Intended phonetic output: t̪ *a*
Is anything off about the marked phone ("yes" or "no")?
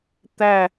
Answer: yes